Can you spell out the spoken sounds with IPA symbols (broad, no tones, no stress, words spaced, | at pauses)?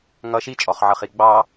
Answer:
ŋʌ ʃit͡ʃʼɔχʕʌχi ɡ͡bɑ